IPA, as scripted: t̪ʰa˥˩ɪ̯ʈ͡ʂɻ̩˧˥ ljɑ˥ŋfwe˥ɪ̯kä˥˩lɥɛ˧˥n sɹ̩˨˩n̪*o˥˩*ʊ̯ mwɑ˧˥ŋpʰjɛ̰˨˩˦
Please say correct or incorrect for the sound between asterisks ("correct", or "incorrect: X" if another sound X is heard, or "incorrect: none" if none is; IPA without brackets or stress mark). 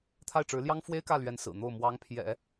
correct